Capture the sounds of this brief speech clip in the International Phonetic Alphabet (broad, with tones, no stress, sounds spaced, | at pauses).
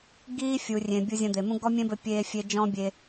ɡ iː˦ fʲ u˨ rʲ ẽ˨ bʲ u˧ zʲ ɐ̃˧ d̪ e˨ m ũ˦ ɡ ɔ˦ mʲ ẽ˦ b ɘ˧ pʲ eː˦ fʲ e˦ d͡ʒ ɔ̃˦ bʲ e˧